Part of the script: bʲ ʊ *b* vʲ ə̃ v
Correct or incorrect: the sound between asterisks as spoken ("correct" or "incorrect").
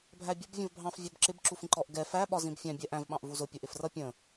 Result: correct